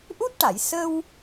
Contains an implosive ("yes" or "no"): no